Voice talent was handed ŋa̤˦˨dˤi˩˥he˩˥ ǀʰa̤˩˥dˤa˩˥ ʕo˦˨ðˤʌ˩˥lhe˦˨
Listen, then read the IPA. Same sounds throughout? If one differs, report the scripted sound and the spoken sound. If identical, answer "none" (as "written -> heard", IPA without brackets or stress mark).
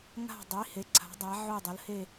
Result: ðˤ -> dˤ